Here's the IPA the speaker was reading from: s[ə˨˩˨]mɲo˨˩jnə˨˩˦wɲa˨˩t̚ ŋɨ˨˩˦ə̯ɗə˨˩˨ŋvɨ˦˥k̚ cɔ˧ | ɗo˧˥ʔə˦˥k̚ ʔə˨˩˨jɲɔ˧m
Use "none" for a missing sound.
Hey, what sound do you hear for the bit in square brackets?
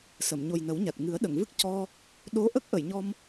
ə˨˩˨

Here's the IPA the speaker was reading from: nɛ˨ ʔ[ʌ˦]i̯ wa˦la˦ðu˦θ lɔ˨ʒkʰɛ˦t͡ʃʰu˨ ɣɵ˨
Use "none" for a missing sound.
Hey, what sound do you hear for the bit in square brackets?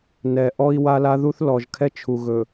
ɔ˦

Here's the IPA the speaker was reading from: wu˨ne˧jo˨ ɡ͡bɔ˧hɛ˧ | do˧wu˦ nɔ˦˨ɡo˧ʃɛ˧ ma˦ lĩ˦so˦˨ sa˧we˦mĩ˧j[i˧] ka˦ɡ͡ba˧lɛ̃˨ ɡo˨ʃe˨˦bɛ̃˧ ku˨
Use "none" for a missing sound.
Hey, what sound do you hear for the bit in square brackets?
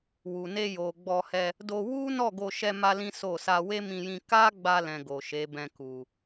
ĩ˧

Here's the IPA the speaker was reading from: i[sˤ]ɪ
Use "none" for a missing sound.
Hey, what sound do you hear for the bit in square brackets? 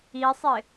sˤ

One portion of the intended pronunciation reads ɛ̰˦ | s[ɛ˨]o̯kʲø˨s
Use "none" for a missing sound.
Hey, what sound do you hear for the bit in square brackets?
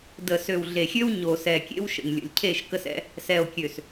ɛ˨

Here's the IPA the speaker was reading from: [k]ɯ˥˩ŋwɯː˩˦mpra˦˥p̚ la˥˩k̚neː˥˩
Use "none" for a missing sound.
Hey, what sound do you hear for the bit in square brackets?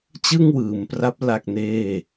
t͡ɕ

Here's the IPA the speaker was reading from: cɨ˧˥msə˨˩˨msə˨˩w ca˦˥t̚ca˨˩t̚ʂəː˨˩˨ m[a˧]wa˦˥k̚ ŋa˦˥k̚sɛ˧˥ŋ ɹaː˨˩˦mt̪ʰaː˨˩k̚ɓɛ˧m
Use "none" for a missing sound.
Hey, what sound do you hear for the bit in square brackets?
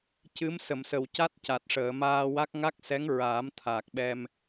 aː˧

